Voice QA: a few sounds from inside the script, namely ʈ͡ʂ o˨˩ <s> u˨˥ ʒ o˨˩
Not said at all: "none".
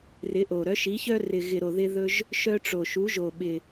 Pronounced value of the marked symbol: ʃ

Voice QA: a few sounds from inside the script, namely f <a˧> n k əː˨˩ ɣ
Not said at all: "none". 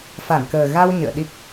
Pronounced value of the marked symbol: a˧˩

